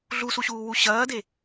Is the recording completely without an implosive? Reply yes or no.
yes